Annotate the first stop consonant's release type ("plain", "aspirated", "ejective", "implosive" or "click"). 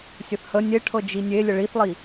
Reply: aspirated